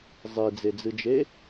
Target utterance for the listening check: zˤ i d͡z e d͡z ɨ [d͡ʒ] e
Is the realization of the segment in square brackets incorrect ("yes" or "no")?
no